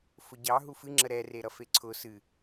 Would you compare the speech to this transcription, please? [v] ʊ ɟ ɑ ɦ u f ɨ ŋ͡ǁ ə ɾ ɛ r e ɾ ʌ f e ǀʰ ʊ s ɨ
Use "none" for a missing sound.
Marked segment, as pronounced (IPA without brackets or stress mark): f